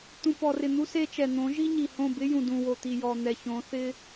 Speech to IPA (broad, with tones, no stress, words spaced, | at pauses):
t̪ũ˨pɔ˨rɪ˨ n̪u˦se˦t͡ʃɛ˨ n̪õ˨˦ ʒi˦ɲi˨hõ˦˨bɪ˦ jũ˨dũ˨wo˨t̪i˨ jɔ˨n̪ɛ˨ çõ˨˦θɪ˦